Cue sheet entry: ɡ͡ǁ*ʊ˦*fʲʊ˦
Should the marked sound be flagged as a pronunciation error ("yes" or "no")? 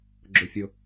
no